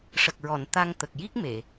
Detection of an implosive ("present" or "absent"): absent